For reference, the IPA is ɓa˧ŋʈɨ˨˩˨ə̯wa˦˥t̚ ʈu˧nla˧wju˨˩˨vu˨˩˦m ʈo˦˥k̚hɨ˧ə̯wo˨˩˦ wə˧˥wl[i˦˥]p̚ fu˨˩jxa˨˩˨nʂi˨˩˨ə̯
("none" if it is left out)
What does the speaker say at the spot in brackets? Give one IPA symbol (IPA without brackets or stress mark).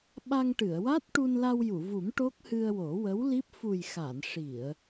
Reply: i˦˥